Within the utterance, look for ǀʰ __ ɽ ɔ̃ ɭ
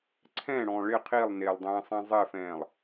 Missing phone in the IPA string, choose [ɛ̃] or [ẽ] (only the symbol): ɛ̃